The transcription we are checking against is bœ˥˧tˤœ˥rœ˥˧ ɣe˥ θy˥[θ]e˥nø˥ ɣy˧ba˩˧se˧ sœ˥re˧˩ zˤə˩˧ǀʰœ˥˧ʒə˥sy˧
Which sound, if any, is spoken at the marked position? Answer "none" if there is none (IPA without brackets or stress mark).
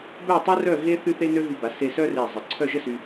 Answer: θ